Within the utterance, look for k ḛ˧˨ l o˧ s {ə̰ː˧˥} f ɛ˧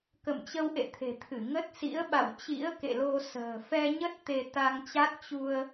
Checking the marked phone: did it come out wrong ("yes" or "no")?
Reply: yes